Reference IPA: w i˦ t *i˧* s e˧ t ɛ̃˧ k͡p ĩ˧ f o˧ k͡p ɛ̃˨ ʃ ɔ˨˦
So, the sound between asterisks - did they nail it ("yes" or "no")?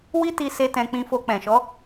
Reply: yes